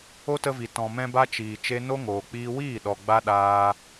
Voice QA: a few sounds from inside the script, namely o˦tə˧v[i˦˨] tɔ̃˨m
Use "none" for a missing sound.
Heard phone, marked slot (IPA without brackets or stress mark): i˨